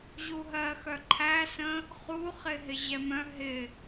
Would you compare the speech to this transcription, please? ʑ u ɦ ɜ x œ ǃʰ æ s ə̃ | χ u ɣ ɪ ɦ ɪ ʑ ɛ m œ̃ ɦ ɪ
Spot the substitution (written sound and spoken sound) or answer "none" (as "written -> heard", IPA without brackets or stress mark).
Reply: ɣ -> χ